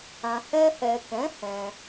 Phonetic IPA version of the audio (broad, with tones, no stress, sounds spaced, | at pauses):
ã˨ h ɛ˧ h ɛ˨ k ɛ̃˨˦ h ɛ̃˧